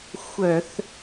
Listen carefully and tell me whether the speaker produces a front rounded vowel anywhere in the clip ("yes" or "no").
yes